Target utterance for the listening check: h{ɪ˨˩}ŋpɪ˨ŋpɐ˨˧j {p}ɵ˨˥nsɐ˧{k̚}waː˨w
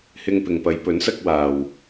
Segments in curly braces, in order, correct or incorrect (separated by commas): incorrect, correct, correct